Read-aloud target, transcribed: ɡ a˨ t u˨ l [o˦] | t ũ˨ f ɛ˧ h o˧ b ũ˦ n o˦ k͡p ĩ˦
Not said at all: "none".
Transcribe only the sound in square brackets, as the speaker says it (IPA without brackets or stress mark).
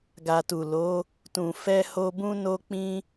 o˨˦